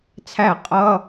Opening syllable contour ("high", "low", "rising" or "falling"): falling